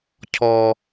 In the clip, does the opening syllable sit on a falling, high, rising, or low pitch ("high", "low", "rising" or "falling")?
high